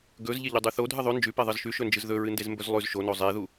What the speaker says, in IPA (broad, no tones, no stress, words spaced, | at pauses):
ɡɵz ʎeʎudˤʉθo dʱɨðˤʉ nd͡ʒʉpe ðˤɨzʃʉʃɵnd͡ʒɨz ðɵɹɨndezmbɵz lˠʉz ʃono zˤeðu